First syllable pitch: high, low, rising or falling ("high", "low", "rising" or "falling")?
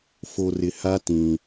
low